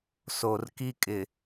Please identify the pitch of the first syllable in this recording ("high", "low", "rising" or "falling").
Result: low